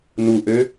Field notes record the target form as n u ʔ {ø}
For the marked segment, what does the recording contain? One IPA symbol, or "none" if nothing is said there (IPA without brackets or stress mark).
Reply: ø